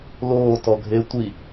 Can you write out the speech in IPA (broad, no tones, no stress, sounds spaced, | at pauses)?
l oː t ɔ ɡʱ e tʷ i